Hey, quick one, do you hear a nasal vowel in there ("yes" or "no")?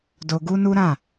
yes